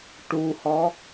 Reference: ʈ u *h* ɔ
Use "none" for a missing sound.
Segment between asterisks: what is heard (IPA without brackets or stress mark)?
h